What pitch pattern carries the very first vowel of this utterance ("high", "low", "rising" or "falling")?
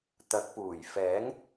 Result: rising